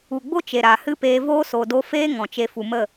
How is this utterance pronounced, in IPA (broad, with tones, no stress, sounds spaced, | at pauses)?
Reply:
u˨ ɡ͡b o˦ t͡ʃ e˨ ɾ a˨ h ɨ˦ p eː˧ v oː˦ s o˨ d o˦ f eː˦ ŋ ɔ̃˨ t͡ʃ e˧ f u˨ m ə˦˨